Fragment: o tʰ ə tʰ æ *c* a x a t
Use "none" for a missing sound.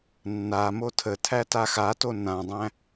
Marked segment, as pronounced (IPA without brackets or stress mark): t